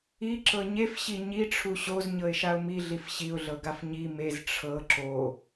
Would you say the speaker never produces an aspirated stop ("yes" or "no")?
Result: no